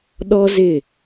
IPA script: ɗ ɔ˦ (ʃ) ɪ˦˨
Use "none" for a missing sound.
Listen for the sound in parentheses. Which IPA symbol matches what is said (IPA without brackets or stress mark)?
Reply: z